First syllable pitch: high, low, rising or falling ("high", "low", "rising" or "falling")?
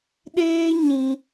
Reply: high